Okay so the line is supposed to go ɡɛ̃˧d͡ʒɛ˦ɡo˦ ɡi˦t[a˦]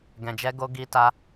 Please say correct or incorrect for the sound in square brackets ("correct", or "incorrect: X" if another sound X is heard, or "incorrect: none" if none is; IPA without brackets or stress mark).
correct